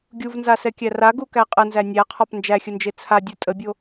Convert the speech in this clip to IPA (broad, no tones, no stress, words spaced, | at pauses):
ɡʲuvnzasɛkʲæ raɡukæ qʼənzæ nʲæqʰɒp nd͡ʒæxʲənd͡ʒe t͡sʰadʲu tʼəbʲo